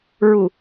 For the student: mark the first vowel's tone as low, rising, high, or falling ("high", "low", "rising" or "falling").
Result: low